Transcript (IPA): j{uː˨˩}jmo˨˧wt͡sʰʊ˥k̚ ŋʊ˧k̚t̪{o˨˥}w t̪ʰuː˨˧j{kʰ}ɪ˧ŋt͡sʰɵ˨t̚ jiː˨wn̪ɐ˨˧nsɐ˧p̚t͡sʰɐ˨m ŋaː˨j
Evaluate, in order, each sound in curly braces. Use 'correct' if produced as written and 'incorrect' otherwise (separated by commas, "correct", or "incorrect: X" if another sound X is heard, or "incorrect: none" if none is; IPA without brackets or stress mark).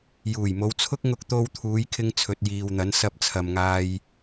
correct, incorrect: o˧, correct